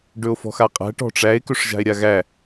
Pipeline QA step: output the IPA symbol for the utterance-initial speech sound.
ɖ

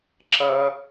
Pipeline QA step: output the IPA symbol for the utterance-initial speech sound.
ǁ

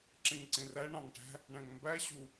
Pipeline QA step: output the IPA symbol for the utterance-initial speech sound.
ǁ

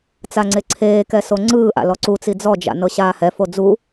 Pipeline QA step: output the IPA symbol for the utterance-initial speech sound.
t͡s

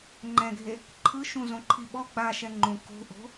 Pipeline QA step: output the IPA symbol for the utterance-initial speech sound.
ŋ͡ǃ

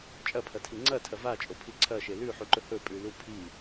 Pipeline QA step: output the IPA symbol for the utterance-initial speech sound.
t͡ʃʼ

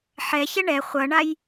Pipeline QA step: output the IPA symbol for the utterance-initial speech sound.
ħ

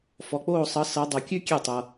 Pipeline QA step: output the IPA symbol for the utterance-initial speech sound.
f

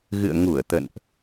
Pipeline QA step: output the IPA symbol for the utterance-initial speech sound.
ɣ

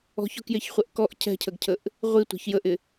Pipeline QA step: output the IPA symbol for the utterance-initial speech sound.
ɔ̤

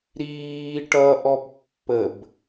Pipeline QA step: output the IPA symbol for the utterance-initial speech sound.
ɾ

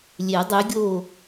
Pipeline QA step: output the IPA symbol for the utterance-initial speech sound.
lʲ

